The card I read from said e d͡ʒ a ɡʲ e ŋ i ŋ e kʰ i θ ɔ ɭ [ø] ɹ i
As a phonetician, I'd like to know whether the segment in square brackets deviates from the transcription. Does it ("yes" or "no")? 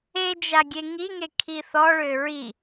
no